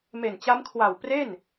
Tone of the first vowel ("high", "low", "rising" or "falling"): low